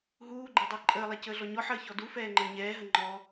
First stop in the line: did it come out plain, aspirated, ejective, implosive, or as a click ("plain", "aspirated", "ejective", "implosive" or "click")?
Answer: click